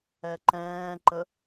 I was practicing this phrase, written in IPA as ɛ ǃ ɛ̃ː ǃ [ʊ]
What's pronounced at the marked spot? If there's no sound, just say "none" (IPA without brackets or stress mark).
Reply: ə